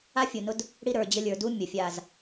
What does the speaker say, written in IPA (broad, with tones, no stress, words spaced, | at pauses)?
a˦fʲu˨nʊ˦d | ɽi˦ɾə˞˨d͡ʑə˦ lʲə˞˨du˦ mʲə˨fʲa˦˨z